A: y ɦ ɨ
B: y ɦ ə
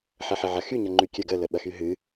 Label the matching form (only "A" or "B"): A